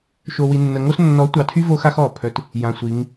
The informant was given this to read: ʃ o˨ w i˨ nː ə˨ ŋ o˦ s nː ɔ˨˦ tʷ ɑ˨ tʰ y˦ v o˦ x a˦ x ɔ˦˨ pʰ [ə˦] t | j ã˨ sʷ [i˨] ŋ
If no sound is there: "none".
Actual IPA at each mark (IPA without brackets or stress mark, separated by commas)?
œ˦, i˨˦